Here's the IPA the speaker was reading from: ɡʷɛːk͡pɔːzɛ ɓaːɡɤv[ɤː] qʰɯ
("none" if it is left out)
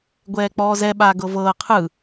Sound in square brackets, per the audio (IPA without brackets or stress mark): ɤː